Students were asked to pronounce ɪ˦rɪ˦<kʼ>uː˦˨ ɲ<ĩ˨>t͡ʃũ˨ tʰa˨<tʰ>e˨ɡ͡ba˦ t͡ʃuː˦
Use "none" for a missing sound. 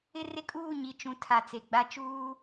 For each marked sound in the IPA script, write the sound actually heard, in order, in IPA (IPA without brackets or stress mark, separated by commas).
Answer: kʼ, i˨, t͡s